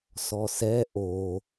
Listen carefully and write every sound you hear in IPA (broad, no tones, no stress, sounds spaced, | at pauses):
s ɔ s ɛ ʔ o